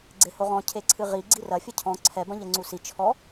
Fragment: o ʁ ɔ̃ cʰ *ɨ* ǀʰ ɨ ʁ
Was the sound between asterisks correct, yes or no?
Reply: no